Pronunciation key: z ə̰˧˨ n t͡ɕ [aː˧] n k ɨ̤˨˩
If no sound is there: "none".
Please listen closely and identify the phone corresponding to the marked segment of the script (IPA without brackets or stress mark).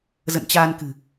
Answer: aː˧